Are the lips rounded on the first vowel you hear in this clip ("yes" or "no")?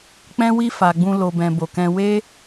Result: no